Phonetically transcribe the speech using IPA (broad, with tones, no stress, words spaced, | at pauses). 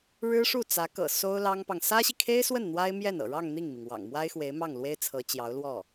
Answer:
ɻɻ̩˥ʂu˥˩t͡sä˧˥kɤ̰˨˩ so˥ʊ̯lɑ˥ŋpɑ˨ŋ sä˥ɕi˨kʰe˥ɪ̯swə˥˩n n̪wa˥ɪ̯ mjɛ˥˩nɤ̰˨˩ɻɑ˥˧ŋ n̪i˥˩ŋmi˩ŋ wɑ̰˨˩ŋmwa˥ɪ̯xwe˧˥ɪ̯ mɑ˥˩ŋlwe˥ɪ̯ t͡sʰɤ˧˥t͡ɕjɑ˧˥ʊ̯lwɔ˥˩